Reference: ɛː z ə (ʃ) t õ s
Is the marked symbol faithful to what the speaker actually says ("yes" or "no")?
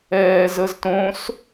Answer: no